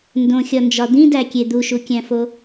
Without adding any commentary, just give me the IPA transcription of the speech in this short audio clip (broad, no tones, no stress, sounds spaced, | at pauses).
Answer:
n d õ xʲ ɒ n d͡ʒ ɒ d̪ ĩ d æ kʲ e d̪ u ʃ u kʲ æ̃ f o